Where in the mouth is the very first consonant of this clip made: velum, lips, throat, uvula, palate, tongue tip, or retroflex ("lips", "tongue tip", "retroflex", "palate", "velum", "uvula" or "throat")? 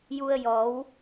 palate